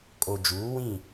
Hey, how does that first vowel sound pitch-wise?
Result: low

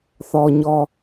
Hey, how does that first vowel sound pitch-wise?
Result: low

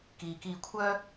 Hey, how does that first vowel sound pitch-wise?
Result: low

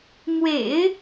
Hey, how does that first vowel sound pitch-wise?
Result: low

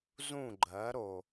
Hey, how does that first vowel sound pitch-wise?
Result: falling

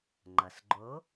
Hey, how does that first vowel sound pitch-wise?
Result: low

